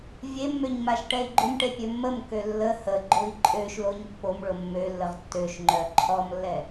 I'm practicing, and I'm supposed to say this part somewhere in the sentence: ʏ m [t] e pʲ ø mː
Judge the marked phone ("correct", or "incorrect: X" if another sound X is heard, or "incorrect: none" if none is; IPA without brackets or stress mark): incorrect: ʈ